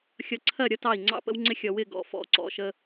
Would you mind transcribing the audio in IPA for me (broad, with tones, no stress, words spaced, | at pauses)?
xʲʌ˨ǀʰɜ˦˨ ɾʲʌ˦tɑ˦˨i̯ŋ͡ǀɑ̰˦ pə̰˦wŋ͡ǀɪ˦ xʲʌ˨wɪ˦˨ɡɔ̰˨ fɔ̰˨˦ǀɔ̰˨ʃə˦